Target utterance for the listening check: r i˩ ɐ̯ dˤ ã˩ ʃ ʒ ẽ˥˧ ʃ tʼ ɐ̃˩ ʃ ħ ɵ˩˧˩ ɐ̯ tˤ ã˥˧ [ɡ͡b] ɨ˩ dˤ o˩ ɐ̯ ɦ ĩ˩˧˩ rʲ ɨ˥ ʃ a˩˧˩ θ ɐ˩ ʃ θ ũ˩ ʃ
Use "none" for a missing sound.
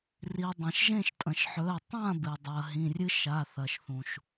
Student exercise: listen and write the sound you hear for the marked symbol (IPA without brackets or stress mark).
b